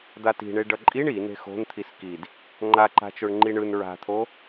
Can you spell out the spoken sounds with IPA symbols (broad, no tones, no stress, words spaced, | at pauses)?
d̪ati̤ɳe ɖʌǃʼiɳ i ne̤xo̤nt̪ʰis kid | ŋ͡ǃaǃa̤t͡ʃoɳ ŋ͡ǃiɳɯn ɹa̤t̪ʰo